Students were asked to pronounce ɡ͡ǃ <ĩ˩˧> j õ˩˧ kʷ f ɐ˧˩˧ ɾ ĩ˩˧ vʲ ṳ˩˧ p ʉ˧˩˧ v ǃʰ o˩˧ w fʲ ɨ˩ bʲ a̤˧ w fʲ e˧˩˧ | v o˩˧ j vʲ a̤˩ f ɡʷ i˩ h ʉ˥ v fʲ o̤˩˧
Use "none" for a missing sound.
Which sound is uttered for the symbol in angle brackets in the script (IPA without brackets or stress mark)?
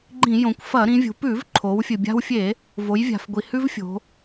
ĩ˧˩˧